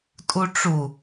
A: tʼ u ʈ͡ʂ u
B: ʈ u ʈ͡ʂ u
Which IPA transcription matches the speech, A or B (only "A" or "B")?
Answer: A